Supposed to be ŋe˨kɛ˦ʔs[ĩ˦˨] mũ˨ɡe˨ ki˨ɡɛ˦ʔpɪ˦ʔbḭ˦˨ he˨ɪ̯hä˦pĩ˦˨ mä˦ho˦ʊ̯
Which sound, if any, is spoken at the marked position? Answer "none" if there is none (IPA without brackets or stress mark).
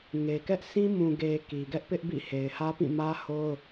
ĩ˦